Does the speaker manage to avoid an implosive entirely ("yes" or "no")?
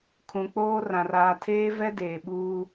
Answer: no